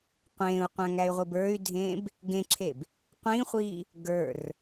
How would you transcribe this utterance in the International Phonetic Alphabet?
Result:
qʷ ẽː u̯ qʷ æ̃ ŋ æ y̯ ʁʷ i b ə˞ y̯ dʱ ẽː b | ɡ ẽ ǁʰ e b | qʷ ĩ χʷ iː | ɡ ə˞ r

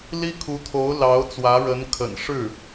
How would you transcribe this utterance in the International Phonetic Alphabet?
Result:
l i˥ kʰ u˧˥ t̪ʰ o˧˥ ʊ̯ l ɑ˧˥ ʊ̯ t͡s w ä˧˥ ɻ ə˧˥ n kʰ ə̰˨˩ n ʂ ɻ̩˥˩

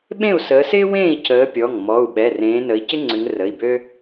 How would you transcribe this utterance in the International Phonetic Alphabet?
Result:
ɓ ẽ˥˨ u̯ s əː˨˦ s ɪː˥ w ẽː˥˨ i̯ c əː˨˦ pʲ ɔ˩˧˩ ŋ m ɔ˩˧˩ u̯ ɓ ɛ˩˧˩ r ẽː˨˦ n ə˨˦ i̯ c ɪ˥ ŋ͡ǀ ʏ˨˦ ŋ r ə˩˧˩ i̯ b ø˥

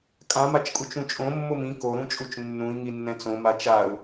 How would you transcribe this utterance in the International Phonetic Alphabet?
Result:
kʼ ã m a t͡ʃ kʼ u t͡ʃ ũ t͡ʃʼ õ mː o m ĩ k o ɾ ũ t͡ʃʼ u t͡ʃ nː ũ i̯ ŋ i nː ɛ̃ t͡s õ m a t͡ʃ a u̯

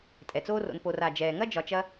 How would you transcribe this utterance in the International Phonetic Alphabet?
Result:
tʼ ɛ˩ t͡s oː˦ r o̰˨ n p o˩ r a˩ d͡ʒ ɛː˩ ŋ ɐ˥ d͡ʒ ɒ˨ t͡ʃ ɐ˦

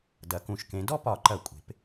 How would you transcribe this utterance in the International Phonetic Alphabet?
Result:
d ɐ˩˧ k ũ˩˧ ʃ k ẽ˩˧ d ɔ˥ p ɒ˧˩˧ ǃ ɐ˧˩˧ kʷʼ e̤˩˧ p

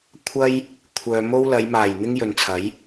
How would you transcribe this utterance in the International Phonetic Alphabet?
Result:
kʷʰ ɐ˥ j | kʷʰ œː˧ m o˥ w l ɐ˨˧ j m aː˨˩ j n̪ ɪ˥ ŋ j ɵ˨ n t͡sʰ ɐ˨˥ j

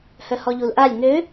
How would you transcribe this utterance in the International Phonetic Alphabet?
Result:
h œ h ɔ ʎ u l ʔ a lʲ ŋ ø

